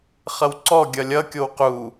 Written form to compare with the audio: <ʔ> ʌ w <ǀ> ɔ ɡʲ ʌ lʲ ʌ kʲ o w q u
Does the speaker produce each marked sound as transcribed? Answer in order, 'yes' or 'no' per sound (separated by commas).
no, yes